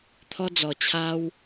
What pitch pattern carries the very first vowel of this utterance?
high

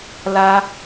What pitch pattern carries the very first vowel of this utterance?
high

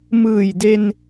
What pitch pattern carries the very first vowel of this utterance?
low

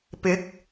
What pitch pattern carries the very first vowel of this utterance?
rising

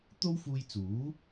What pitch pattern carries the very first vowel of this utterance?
high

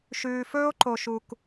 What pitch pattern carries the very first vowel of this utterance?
low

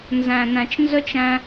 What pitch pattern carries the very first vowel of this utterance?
low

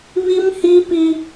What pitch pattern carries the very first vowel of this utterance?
high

